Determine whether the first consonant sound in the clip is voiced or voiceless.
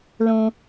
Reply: voiced